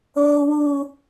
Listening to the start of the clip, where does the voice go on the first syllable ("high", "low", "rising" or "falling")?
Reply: high